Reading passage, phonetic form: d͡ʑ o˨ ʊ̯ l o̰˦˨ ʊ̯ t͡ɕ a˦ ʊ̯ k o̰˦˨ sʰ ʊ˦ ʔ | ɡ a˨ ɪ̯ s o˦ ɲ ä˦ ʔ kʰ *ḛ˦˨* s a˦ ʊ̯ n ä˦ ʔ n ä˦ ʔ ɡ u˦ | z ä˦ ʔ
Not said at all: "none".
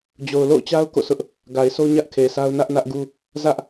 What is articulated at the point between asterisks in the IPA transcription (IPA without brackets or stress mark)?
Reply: e˨